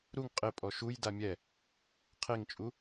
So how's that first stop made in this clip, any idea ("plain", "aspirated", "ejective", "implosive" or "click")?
ejective